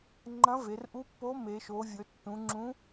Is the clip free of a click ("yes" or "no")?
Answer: no